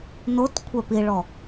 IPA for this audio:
not kʷʰɛpiɭɔ

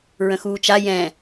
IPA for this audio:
ɹə̃xuːt͡ʃa jɛ̃

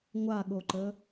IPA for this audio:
ŋʷaɠoǃə

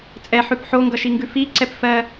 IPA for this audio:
t͡sʼɛħʉp ħoŋɡʌʃiŋɡʉ fiǀɛp fɜ

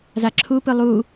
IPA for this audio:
zaǁʰupɯ lˠu

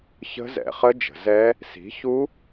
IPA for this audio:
çə̤˦˥zɛ̰˩˧χə˦˥ d͡ʒə̤˩˧zɛ˦˥ | si̤˨˥ çu˦˥

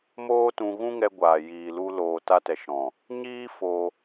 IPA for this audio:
moː˦tũ˧ ɣũ˦ŋɛ˧ɡʷaː˨ jiː˨lu˧loː˨ ta˧tɛ˨ʃɔ̃˨ | ɲiː˦ fo˧

